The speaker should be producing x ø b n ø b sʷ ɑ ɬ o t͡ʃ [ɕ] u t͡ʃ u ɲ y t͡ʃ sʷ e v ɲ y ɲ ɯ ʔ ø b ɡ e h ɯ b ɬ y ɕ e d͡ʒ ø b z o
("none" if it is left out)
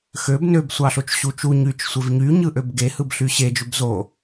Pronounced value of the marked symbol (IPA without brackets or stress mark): ɕ